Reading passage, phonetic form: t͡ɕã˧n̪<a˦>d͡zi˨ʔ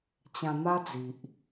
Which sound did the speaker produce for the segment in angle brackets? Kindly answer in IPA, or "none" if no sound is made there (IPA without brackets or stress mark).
a˦